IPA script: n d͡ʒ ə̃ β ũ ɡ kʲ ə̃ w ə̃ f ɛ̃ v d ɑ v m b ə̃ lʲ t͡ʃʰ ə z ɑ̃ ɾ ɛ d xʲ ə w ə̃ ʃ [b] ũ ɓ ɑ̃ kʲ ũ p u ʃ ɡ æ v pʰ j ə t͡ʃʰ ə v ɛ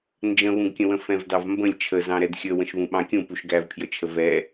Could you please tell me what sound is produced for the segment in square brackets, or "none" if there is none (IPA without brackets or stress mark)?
β